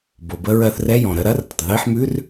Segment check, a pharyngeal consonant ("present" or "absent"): present